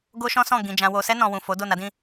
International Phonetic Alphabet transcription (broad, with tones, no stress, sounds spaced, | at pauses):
ɡ o˦ ʃ ɔ̃˦ s ɔ̃˦˨ ɡ ĩ˨ d͡ʒ ã˨ w o˨ s ɛ˧ n ɔ̃˨ w ũ˨ f o˨˦ d o˦˨ n a˨˦ d ĩ˦